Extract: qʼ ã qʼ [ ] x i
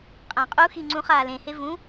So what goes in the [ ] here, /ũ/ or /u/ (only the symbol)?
u